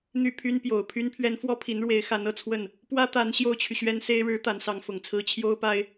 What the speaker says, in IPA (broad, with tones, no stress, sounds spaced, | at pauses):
n̪ y˥˩ pʰ y˥ n p j o˨˩ ʊ̯ pʰ y˥ n pʰ ɥ ɛ˥ n f w ɔ˥ pʰ i˧˥ n ɻ w e˧˥ ɪ̯ x a˧˥ n ɤ˨˩ t͡sʰ w ə˥˩ n | p w ä˥ t̪ a˧˥ n ɕ j o˥ ʊ̯ t͡ɕʰ y˨ ɕ ɥ ɛ˥ n s e˥ ɪ̯ ɻ ɻ̩˧˥ t̪ a˧˥ n s ɑ˧˥ ŋ f ʊ˨˩ ŋ t͡sʰ ɹ̩˥ t͡ɕʰ j o˥ ʊ̯ p a˥ ɪ̯